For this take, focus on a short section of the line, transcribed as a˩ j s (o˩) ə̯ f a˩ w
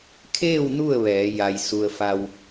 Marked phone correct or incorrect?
incorrect